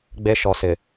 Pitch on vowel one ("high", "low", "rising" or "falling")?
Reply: high